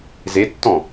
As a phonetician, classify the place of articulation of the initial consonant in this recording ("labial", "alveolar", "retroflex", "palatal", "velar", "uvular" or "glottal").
alveolar